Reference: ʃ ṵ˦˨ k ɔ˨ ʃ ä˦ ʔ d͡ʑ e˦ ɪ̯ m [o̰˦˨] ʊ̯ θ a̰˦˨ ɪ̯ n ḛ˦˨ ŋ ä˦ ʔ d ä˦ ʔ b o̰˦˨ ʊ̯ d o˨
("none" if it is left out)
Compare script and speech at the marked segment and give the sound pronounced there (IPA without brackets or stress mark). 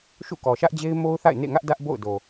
o˦